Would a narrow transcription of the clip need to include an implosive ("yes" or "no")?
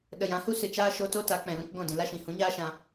yes